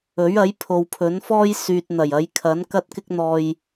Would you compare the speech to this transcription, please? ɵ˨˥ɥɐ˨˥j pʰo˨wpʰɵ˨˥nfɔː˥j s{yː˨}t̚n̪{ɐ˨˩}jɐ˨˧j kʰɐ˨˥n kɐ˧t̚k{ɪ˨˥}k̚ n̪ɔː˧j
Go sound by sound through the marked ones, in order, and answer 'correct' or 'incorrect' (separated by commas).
correct, correct, incorrect